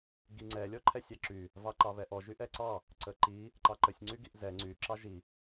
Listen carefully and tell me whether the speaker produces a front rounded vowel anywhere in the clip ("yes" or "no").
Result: yes